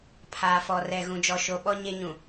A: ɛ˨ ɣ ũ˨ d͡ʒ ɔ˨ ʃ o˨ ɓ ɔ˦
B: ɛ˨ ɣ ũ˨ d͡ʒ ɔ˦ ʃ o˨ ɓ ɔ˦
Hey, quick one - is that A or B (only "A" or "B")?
A